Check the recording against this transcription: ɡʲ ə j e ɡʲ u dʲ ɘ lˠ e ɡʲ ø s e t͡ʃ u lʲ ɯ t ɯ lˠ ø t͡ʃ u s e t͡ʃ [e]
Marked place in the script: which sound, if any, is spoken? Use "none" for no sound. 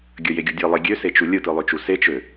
ø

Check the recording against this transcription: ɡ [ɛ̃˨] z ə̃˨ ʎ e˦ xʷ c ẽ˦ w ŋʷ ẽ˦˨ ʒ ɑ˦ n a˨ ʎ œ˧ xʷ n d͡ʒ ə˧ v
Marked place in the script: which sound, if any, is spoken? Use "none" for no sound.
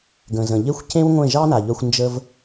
ə̃˨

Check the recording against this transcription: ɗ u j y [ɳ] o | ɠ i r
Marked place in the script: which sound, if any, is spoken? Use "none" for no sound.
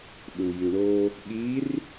ɳ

